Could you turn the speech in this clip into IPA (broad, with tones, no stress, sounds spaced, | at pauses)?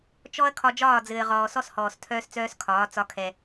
t͡ʃ ɔ˦ ɐ̯ kʰ ɒ˧ d͡ʒ ɒː˦˨ d͡z ɘː˨ ʁ ɔː˨ s ɔ˦ s h ɔː˨ s tʰ œː˦ s t͡s œː˦ s kʰ ɒː˨˦ t͡s ɒ˧ kʰ ɛ˨